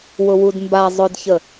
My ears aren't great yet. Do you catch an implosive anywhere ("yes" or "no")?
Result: no